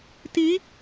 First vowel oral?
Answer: yes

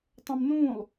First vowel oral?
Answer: no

